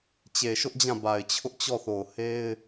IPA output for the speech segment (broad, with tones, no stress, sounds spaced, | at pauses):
t͡ɕ e˨ ʃ ʊ˦ ʔ d͡ʑ ã˦˨ b a˨ ɪ̯ t͡ɕʰ ʊ˦ ʔ t͡ɕ ɔ˦˨ θ o˨ ʊ̯ h e˦ ɪ̯